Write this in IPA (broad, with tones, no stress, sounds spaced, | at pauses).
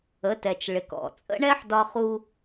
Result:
ə˩˧ t ɛ˩ t͡ʃ ɭ ɪ˩ k ɔ̰˩ t͡sʼ ə̰˥ ɳ ɛ˥ ħ d ɒ˧ χ u˧